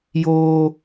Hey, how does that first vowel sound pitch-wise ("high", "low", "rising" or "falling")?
high